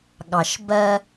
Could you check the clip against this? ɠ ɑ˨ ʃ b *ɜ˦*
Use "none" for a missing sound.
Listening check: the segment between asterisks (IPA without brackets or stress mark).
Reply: ɜ˦